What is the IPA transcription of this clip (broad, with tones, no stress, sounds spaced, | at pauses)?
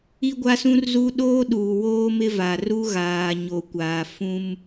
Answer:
i˦ ɡʷ a˦ s ũ˦ r z u˦ ɗ oː˦ ɗ uː˨ w oː˦ m ɪ˦ v a˨ r u˦ ɣ aː˨ ɲ o˨ kʷ aː˨ f ũ˦ m